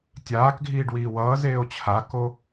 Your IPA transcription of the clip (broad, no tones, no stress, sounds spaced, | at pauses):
tʲ aː k ɡʱ iː ɖ w iː w ʌː z eː o̯ t͡ɕʰ a k o